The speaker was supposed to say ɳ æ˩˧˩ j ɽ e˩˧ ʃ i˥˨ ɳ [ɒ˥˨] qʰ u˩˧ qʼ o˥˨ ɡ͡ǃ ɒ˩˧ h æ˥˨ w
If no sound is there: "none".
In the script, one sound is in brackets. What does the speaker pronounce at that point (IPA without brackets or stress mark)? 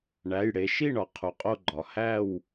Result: ɒ˩˧